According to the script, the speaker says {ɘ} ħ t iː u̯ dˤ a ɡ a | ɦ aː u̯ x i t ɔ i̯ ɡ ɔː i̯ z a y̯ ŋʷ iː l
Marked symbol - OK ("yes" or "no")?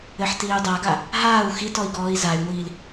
yes